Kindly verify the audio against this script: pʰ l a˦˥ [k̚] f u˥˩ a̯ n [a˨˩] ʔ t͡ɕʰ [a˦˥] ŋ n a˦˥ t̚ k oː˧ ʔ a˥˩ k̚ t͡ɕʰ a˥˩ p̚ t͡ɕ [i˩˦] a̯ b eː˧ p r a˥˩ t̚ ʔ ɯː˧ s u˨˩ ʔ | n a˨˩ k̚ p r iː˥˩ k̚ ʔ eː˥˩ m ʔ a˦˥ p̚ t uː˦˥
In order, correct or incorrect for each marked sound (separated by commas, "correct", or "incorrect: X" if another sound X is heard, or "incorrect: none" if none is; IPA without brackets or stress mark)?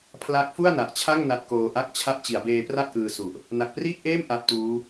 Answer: correct, correct, incorrect: a˥˩, correct